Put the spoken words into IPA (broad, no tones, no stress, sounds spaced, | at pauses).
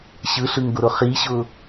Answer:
ɕ ɯ ɬ ɯ ŋ ɡ ʊ ɾ ʊ χ i ɕ ʊ